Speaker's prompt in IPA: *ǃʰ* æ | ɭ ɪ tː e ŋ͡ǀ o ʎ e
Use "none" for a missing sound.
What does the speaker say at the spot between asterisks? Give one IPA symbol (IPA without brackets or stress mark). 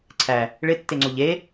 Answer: ǀʰ